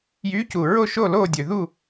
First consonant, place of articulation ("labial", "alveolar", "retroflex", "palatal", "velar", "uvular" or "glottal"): palatal